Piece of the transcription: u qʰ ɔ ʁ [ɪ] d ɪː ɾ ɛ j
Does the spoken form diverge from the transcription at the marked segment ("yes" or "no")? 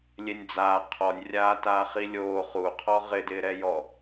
no